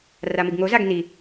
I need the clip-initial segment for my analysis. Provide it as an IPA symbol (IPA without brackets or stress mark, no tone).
r